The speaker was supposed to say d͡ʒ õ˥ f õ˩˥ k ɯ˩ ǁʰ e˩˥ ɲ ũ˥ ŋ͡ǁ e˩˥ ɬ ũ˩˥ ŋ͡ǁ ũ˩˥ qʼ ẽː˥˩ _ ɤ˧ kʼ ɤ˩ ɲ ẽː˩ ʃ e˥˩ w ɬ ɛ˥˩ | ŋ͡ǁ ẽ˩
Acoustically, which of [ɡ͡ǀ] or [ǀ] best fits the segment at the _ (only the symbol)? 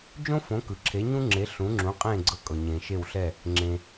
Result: ɡ͡ǀ